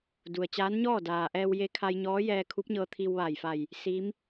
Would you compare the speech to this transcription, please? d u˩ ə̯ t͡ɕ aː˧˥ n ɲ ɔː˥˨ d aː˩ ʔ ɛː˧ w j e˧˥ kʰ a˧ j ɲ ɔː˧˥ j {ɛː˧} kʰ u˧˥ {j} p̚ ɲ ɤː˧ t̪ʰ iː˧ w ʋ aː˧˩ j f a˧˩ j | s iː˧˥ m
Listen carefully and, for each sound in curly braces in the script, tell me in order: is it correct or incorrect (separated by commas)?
correct, incorrect